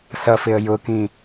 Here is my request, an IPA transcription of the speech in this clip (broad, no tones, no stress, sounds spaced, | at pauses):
s ʌ f ɪ ə̯ j ʊ k ĩ